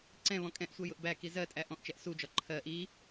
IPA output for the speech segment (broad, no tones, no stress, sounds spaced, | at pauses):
ǀ ɛ̃ β ɔ̃ kʼ ɛ̃ ʔ sʷ ɜ j ʊ ʔ b æ k i z ɜ tʼ æ ʔ ɔ̃ ʔ t͡ʃ ɛ ʔ s u d͡ʒ ɒ ǃʰ ɜ ʔ i